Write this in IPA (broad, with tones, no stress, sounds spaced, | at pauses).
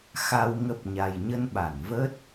x a˨˩ w ŋ ə˨˩ p̚ ɲ a˨˩ j ɲ ə˧ n ɓ a˧˩ n v ə˦˥ t̚